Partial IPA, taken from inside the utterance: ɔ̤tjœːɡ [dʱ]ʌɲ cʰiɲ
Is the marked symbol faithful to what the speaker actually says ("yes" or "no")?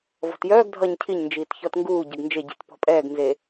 yes